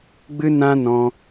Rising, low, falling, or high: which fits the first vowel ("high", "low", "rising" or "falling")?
high